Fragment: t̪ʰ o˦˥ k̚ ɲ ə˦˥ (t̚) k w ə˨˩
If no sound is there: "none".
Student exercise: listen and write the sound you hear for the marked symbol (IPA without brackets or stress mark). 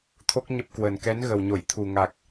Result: p̚